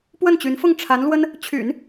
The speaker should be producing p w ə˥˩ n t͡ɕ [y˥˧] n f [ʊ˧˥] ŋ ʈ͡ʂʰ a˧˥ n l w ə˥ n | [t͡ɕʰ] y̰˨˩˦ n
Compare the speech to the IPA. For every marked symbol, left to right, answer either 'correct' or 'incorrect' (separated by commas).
incorrect, incorrect, correct